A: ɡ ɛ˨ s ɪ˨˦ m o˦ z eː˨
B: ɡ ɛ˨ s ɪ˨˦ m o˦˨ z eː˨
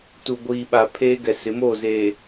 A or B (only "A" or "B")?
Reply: B